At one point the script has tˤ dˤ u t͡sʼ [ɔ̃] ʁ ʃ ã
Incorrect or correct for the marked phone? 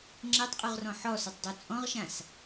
correct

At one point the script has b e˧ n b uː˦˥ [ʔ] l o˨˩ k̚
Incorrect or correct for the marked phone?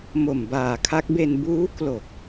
incorrect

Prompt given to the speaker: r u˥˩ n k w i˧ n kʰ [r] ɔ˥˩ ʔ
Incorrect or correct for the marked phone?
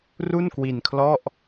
incorrect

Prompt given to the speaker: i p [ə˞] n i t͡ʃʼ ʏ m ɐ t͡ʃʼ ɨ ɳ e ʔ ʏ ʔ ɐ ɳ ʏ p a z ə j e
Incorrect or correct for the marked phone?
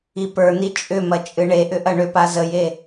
correct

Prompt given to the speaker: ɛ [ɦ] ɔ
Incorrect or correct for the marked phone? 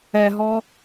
correct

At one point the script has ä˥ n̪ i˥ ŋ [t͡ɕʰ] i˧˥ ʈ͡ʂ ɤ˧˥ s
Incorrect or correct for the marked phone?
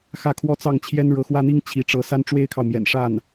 correct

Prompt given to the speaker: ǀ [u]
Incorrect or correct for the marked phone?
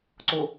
incorrect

